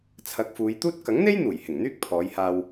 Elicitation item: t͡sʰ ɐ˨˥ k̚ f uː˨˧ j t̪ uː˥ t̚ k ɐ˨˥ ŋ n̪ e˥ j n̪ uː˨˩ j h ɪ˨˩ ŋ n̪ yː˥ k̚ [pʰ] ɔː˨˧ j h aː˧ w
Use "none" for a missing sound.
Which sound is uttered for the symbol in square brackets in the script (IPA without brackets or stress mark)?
pʰ